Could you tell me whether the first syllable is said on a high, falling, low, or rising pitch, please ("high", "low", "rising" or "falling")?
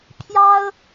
high